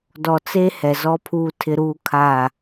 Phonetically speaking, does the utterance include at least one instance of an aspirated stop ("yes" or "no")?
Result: yes